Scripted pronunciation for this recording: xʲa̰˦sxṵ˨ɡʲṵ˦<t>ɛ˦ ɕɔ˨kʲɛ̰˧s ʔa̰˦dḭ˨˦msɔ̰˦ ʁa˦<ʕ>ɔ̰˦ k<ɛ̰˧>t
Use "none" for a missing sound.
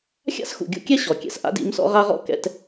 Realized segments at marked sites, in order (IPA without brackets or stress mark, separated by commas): kʲ, ʁ, ɛ̰˧